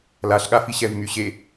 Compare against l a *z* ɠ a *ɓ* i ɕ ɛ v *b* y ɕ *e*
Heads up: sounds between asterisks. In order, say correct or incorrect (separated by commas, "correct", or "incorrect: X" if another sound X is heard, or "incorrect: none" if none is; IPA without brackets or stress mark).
incorrect: ɬ, incorrect: f, incorrect: m, correct